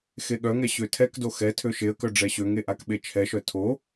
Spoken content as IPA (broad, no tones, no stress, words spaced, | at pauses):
xeɠœŋɛ ɕøtʰɛkdo xɛ tʰøʃeə̯kœ ɖ͡ʐɛɕøŋe ʔakɓet͡ʃʰɛʃœ tʰo